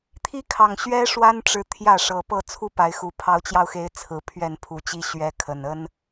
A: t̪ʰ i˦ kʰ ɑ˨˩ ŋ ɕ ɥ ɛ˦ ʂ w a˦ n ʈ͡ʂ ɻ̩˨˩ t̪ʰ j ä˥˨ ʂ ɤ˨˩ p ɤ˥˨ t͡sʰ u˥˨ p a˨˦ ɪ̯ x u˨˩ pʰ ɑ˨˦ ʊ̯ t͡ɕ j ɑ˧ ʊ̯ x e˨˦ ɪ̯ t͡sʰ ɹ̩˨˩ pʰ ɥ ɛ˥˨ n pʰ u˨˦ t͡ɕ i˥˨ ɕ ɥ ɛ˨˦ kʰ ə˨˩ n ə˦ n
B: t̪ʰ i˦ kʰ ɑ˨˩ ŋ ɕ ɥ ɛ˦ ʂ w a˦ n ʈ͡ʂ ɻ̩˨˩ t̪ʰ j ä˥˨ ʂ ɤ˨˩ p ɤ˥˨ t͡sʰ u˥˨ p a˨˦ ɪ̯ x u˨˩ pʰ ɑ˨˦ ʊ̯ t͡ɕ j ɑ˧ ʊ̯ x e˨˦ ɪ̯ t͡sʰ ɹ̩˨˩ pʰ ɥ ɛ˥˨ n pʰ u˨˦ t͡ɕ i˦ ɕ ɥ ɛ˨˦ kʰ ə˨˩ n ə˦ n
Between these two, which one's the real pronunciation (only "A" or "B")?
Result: B